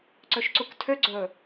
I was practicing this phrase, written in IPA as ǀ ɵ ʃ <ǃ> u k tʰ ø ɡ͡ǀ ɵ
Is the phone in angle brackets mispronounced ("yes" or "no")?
yes